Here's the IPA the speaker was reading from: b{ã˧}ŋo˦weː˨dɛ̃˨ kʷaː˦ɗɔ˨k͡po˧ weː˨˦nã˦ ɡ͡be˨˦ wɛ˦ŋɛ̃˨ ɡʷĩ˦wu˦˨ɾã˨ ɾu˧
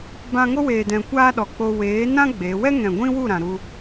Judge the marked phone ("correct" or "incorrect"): correct